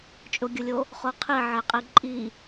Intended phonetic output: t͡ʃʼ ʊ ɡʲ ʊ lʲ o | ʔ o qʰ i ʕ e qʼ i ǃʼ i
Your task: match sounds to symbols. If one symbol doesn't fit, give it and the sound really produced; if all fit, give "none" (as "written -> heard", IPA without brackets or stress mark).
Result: ʔ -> χ